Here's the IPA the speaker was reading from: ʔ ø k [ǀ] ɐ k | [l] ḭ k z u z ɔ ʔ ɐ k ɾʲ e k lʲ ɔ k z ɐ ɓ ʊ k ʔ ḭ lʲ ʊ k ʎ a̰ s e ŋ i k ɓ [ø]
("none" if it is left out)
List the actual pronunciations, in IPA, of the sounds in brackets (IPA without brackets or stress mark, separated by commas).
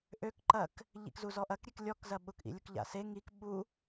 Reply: ǃ, ʎ, u